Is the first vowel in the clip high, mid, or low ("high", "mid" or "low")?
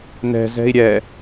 mid